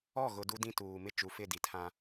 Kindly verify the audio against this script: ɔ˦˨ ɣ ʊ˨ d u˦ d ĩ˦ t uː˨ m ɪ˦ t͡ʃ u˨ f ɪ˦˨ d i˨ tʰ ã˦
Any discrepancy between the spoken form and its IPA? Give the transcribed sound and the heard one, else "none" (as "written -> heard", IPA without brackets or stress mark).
none